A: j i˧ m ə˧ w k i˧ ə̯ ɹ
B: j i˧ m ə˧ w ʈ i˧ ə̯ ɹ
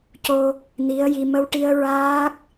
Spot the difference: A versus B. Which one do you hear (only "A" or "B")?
B